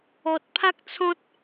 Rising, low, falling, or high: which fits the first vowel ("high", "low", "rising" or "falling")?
low